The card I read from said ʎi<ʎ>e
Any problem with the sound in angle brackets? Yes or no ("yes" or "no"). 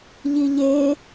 no